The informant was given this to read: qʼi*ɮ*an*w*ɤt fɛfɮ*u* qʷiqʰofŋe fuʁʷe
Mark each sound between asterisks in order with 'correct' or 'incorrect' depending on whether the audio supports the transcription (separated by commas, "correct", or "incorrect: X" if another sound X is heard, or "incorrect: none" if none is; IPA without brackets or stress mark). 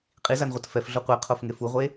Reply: incorrect: z, incorrect: ʁʷ, incorrect: o